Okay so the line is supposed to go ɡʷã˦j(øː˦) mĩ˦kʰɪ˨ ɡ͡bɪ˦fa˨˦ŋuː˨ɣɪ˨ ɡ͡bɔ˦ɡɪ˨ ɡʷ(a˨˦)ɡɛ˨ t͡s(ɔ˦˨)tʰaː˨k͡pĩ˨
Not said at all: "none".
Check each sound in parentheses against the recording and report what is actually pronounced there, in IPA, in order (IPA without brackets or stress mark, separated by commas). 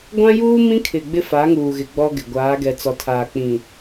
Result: uː˦, aː˨˦, ɔ˨